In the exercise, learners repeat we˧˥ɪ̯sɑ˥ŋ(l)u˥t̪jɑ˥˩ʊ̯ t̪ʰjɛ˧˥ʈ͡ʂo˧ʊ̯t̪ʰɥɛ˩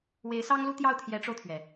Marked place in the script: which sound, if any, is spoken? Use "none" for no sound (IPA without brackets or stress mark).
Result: l